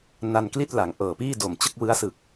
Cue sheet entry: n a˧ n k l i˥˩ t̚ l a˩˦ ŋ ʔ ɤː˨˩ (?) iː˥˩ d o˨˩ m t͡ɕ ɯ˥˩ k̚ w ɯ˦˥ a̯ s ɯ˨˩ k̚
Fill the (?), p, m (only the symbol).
p